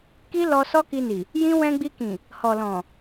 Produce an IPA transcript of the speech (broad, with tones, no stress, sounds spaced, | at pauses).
k i˦ l ɔ˧ s ɔ˦ k i˧ n i˨ | j ĩ˦ w ɛ̃˧ ɡ͡b i˧ k ĩ˨ | h ɔ˨ l ɔ̃˨